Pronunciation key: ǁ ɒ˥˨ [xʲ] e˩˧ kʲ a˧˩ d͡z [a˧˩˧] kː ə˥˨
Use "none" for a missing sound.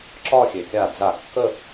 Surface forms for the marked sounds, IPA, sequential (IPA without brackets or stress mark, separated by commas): xʲ, a˧˩˧